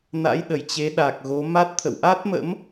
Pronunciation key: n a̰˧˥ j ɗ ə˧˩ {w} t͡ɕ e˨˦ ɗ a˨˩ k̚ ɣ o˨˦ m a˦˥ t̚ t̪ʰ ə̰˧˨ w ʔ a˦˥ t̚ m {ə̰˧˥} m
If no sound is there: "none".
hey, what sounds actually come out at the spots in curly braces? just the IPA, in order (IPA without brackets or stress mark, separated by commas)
j, ə̰˧˥